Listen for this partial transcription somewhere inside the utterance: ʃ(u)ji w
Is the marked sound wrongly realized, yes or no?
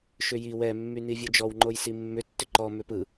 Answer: yes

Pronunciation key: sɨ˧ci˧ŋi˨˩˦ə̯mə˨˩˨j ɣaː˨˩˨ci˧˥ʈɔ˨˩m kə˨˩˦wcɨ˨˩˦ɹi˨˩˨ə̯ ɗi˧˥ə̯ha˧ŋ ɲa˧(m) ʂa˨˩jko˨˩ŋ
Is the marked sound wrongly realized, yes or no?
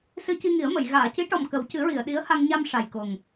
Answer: no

